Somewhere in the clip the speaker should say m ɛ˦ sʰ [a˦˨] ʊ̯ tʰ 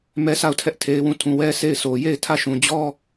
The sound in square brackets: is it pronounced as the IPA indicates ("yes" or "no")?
yes